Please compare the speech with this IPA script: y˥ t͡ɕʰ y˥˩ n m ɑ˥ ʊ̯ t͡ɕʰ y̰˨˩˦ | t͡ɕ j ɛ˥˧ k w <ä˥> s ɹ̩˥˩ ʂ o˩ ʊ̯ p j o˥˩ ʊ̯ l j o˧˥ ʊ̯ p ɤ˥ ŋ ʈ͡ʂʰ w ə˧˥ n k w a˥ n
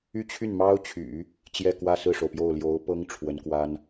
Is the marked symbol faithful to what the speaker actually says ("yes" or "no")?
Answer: no